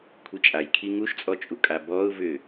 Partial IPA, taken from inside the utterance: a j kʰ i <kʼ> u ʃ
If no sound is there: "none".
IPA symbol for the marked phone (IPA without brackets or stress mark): ŋ